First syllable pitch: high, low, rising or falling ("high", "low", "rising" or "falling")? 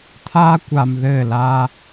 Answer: high